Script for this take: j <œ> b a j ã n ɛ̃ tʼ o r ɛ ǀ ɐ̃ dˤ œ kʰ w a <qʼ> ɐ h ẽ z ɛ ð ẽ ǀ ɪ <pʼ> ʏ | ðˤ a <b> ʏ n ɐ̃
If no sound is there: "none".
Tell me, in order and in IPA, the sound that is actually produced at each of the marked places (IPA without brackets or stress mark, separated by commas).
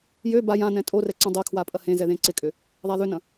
ø, pʼ, kʼ, ð